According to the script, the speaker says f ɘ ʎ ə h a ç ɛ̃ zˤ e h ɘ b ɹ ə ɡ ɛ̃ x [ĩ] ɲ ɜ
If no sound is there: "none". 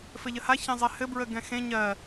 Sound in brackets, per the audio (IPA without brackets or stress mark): ẽ